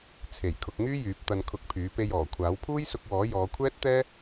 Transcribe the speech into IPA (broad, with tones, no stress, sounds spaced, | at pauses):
t͡sʰ e˨˩ j kʰ ʊ˧ k̚ ŋ yː˥ j yː˨˥ p̚ t̪ ɐ˧ n kʰ ʊ˧ k̚ pʰ yː˨˥ p e˧ j ɔː˨˩ kʷʰ aː˨˥ w pʰ uː˥ j s ʊ˧ k̚ w ɔː˨˥ j ɔː˨˧ kʷʰ ɛː˥ t̚ t̪ ɛː˥